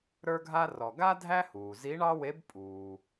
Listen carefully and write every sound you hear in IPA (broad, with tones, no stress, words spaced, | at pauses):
ɾə˞˥ɡʱa˥ rɔ˩ɡa˥ dʱæ˥huː˩ zi˧˥ɳɑ˥we˧˥b pʼuː˩